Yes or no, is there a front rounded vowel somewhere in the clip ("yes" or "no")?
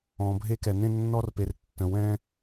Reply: no